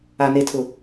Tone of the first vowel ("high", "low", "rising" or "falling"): low